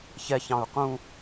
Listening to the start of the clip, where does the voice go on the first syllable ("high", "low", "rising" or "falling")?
low